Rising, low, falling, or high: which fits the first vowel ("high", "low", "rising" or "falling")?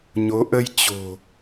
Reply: rising